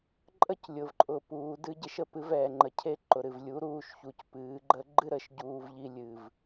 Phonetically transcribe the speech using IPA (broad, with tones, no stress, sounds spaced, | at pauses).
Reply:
ǃʼ ə˦ c lʲ ʊ˨ v ǃʼ ʊ˨ p uː˨˦ d ɨ˦ ɟ e˦ ʃ ə˦ p ɨ˨˦ v ɛː˨ ŋ͡ǃ ə˨ cʰ e˦˨ ǃ ʊ˨ ɾ ɨ˨ v lʲ u˨˦ ɾ uː˦˨ ʃ ç u˨ c p ɨː˨˦ ɡ͡ǃ ə˦ ɡ͡ǃ ɨ˦ ɾ ə˧ ʃ ɟ uː˧ v ʎ i˧ lʲ ɨ˨ v